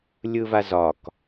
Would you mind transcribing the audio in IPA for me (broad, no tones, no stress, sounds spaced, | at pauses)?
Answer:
lʲ ɯ v a z ɒ k